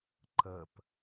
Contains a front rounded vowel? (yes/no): no